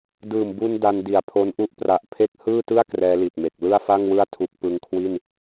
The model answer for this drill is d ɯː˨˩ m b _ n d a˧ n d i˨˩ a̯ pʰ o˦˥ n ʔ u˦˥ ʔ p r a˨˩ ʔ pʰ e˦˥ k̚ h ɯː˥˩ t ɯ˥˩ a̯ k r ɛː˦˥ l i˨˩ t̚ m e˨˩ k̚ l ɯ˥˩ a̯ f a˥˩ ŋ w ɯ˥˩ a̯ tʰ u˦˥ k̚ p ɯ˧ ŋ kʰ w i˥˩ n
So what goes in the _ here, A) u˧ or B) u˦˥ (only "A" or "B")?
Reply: A